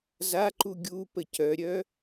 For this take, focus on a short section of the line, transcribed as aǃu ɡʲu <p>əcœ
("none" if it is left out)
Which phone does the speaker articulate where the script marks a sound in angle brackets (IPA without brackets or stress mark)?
p